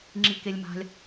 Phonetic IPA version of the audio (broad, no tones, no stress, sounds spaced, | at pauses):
ŋ͡ǁ i k e lʲ m a̤ lʲ